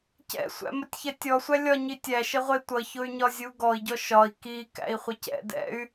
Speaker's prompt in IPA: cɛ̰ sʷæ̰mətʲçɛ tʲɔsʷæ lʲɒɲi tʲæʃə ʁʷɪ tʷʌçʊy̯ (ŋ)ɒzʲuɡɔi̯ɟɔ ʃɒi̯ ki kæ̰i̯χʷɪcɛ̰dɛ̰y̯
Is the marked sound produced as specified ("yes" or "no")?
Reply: no